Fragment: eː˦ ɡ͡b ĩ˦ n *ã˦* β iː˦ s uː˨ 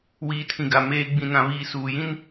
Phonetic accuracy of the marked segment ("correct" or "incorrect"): correct